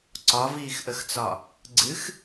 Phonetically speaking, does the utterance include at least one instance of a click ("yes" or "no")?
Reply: yes